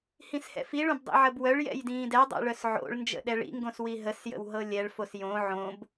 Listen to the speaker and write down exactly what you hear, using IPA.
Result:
h ĩ s h ɛ̰ f i ɭ õ b dˤ ḭ ʕ ə b w œ ɭ j ɛ̰ j d ĩː d ɛ dˤ ɛ̰ ɭ œ s ʕ o̰ ɭ n d͡ʒ ə̰ ɗ ɛ ɭ ḭ ŋ ɡ õ s w i ɦ ə s j ə̰ w ɦ ɤ lʲ ɛ ɭ f o s j õ ʕ õ b

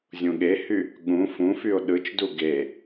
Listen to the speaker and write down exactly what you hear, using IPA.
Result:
zʲ ũ ɠ e h y | ɠ ũ f ũ f y o̯ ɗ ɯ t͡ʃ d u ɡ e

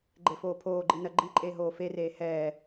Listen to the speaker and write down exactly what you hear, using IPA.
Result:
ɡ͡ǃ e f oː pʰ oː ɡ͡ǃ i n ɜ ɡ͡ǃ i ǃʼ eː ɦ oː f e r eː h ɛː

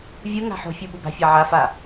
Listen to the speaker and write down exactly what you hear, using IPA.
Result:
vʲ ɯ ŋ a̤ ħ o̤ fʲ u ɓ u b a̤ fʲ a ʕ a f a

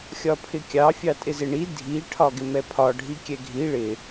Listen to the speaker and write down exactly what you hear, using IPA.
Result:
xʲ ɒ pʰ ɪ kʲ ɑ fʲ ɑ tʼ ɪ z ɪ ɳ i dʱ i ʈʰ ɒ ɡ ɪ m ɛ pʰ ɒ ɖʱ i kʲ ɛ ɡʱ i ɭ ɪ

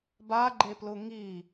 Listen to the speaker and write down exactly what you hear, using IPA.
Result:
b a ɡ͡ǃ e p l ʊ ŋ i

